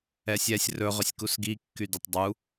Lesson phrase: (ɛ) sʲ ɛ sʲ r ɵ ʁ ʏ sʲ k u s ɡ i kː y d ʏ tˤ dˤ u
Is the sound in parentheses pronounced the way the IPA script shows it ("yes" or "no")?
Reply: yes